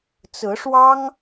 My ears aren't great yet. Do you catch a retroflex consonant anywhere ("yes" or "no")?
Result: yes